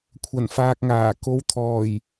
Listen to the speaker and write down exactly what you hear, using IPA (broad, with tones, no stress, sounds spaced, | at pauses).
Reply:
kʷʰ ɐ˨˩ n f aː˨ k̚ ŋ aː˨˩ k o˨˧ w t̪ʰ ɔː˨˩ j